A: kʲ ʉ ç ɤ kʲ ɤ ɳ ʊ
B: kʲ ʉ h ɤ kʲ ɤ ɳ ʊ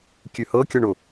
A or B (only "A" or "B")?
B